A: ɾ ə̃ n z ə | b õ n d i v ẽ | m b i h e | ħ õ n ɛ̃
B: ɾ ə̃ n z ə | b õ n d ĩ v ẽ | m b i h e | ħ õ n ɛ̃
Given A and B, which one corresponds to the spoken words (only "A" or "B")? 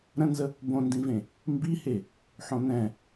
B